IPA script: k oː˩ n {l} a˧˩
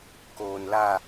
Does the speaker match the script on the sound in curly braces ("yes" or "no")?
yes